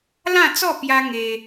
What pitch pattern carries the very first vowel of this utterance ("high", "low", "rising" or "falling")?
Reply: falling